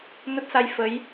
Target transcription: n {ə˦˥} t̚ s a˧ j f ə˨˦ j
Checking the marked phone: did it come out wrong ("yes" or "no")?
no